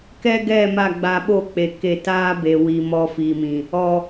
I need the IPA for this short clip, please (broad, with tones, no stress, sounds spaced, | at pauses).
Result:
k ɛ˦ ɡ ɛ˦˨ m a˦˨ ɡ͡b a˧ ɓ o˦˨ k͡p e˨ k e˧ t aː˦ b e˨ w i˨ m ɔ˧ f i˨ m ĩ˨ | ɔ˨